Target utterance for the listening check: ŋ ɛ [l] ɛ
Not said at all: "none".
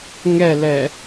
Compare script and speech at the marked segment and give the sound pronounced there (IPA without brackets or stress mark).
l